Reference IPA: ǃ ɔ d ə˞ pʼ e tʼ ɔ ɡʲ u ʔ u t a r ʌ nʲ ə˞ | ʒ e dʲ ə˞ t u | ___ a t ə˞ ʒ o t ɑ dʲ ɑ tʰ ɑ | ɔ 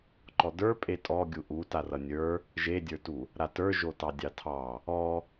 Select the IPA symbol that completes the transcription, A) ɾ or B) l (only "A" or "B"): A